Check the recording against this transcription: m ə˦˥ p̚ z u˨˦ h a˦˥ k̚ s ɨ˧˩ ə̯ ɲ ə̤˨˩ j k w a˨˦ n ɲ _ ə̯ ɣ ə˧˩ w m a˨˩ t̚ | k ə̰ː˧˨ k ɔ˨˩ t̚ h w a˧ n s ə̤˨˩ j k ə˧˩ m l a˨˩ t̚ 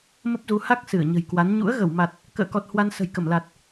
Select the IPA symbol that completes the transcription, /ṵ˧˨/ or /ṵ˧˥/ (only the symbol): ṵ˧˥